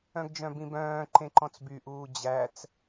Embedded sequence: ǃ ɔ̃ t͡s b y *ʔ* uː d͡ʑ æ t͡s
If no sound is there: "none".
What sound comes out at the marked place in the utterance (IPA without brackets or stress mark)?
ʔ